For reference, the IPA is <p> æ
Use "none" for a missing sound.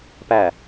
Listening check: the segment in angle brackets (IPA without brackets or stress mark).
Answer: p